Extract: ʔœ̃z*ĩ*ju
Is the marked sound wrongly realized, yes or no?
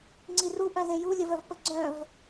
yes